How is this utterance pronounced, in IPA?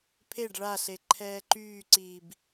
pʰeɖ ɭaɬe ǃʰɛːǃyːǀiːb

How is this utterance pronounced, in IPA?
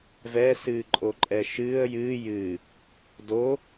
vɛ sɨːǃʼoǃʼɛʃɨːə̯ jɨː jɨ | do

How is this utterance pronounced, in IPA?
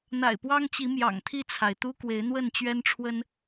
n̪a̰˨˩ɪ̯pwɑ˦ŋt͡ɕi˨˦ mjɑ̰˨˩ŋt̪ʰi˥˨t͡sʰa˩ɪ̯ t̪u˦ kwe˨˦ɪ̯n̪wə˥˨nt͡ɕɥɛ˦nʈ͡ʂʰwə˦n

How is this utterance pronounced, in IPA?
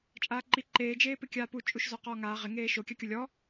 t͡ʃʼaːǃi ǃeːd͡ʒeː pɪkʲaːpu t͡ʃʼuʃzɔqɔːŋaː ʁɪŋeː ʃokʲakʲʊ lʲɔ

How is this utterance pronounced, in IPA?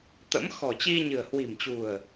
t̪ə̰˧˥m xɔ̤˨˩t͡ɕi˧ɲɨ̤˨˩ə̯ hwi̤˨˩mt͡ɕṳ˨˩ə̯

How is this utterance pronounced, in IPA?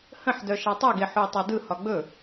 hə̃ħdœ ʃatˤɛɡe ħui̯tˤadɯhɒ ɡ͡bɵ

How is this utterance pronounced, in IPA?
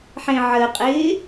ħẽʕəqʼɪː

